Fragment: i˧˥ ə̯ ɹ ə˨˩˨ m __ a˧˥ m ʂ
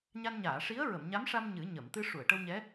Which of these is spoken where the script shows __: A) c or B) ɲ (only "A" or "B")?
B